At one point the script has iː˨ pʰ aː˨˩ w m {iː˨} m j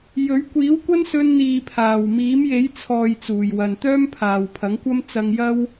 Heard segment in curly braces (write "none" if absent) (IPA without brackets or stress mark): iː˨˥